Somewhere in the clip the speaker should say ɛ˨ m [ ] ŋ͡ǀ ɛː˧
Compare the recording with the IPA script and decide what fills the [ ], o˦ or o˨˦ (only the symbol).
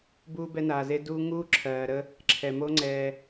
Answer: o˦